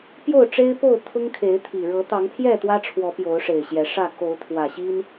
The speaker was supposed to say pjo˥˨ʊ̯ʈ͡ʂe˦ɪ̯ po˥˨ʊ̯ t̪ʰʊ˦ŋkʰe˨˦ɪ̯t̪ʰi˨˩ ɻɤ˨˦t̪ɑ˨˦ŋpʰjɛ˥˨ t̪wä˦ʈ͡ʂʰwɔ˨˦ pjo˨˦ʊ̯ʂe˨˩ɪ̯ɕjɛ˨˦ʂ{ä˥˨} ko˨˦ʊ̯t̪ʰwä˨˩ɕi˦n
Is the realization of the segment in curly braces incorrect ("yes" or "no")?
no